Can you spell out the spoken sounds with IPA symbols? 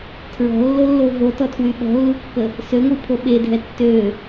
tʰ ɹ ɔ̤ lː o lː o v o t ɔ tʰ w y ɓ ɔ̤ lː u kː ə | s ø ŋʷ i pʰ o ɓ e dʱ ɛ tː ø

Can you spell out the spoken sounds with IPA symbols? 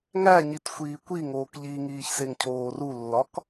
ŋ æ ɲ i t xʷ iː kʷ i ŋ oː k ʎ i ŋ iː ç s e ŋ cʰ oː r u lː ɒ k

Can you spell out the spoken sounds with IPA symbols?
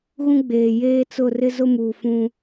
ɣ ũ˦ ɡ͡b eː˨ j eː˦ t͡s ʊ˦˨ r ɪ˦ z ʊ˦ m uː˨ f ũ˦

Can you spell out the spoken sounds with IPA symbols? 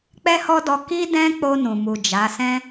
k͡p ɛ˦ h ɔ˦ d ɔ˧ k i˦ d ɛ̃˦ k͡p o˧ n ũ˨ m u˨ d͡ʒ a˨˦ s ɛ̃˦

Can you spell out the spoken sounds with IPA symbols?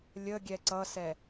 lʲ ə ɡʲ ɛ ǀ ʌ s ɛ

